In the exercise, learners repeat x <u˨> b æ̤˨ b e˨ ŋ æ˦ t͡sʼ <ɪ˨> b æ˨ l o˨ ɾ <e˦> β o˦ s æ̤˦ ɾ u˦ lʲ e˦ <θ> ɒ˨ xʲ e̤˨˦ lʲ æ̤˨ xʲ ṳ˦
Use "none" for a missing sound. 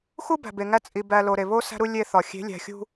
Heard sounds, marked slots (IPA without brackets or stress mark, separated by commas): u˦, i˨, e˨, θ